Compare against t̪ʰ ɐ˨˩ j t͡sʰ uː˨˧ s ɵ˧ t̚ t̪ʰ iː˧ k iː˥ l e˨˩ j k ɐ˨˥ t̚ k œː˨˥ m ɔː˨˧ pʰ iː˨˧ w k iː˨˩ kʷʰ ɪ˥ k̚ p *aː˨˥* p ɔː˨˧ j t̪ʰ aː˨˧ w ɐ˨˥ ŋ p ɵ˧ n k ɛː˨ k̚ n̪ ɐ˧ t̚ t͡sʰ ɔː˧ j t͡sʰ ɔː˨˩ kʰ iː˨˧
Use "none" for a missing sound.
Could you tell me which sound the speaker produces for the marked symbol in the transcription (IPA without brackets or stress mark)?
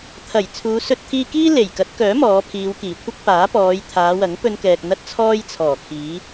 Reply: aː˨˥